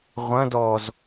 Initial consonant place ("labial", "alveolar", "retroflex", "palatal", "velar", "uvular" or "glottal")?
uvular